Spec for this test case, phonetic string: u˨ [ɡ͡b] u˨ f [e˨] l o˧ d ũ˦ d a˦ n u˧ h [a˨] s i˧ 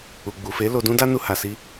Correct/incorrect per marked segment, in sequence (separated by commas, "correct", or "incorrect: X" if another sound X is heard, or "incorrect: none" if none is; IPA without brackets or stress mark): correct, incorrect: e˨˦, correct